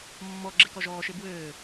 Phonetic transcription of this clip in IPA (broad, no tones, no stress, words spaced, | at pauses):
mːɔ ɡ͡ǁekɔʒɔːʃe bwɘː